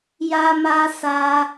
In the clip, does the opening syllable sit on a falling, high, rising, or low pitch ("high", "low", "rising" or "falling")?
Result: high